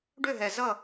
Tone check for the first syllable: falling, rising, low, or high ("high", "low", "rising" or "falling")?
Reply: falling